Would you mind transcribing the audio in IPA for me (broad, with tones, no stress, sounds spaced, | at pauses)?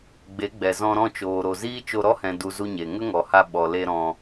ɡ͡b e˨˦ ɡ͡b ɛ˨ z ɔ̃˧ ɾ ɔ̃˦˨ t͡ʃ oː˨ ɾ o˨ z iː˦ t͡ʃ o˧ ɾ ɔ˦ h ɛ̃˨ d u˨ z u˦ ɲ e˨ ŋ ə˦ ŋ ɔ˨ h a˧ ɓ ɔ˨ l e˧ ɾ ɔ̃˧